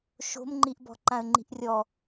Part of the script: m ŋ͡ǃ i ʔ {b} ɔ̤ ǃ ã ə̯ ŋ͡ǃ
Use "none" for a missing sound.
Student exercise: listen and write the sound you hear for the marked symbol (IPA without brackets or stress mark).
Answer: b